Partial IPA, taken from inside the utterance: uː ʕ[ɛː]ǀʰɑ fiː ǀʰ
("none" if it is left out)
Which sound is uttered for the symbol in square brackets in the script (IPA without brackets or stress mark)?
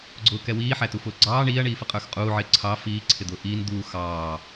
ɪː